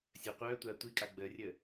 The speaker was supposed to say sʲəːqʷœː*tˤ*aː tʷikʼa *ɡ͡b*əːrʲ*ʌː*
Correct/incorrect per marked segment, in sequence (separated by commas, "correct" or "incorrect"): incorrect, correct, incorrect